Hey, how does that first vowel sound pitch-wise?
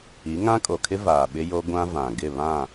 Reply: rising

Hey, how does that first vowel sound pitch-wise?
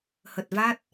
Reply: low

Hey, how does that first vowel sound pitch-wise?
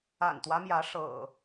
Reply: low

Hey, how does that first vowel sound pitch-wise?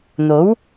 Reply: rising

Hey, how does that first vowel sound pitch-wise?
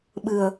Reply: low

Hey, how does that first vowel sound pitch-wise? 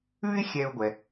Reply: high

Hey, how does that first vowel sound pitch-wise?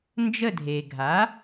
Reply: falling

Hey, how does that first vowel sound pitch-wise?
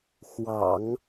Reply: low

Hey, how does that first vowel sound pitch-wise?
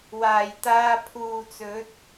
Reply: low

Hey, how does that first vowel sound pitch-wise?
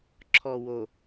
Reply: low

